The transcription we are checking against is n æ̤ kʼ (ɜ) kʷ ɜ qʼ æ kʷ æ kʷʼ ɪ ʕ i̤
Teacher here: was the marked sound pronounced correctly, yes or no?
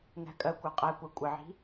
yes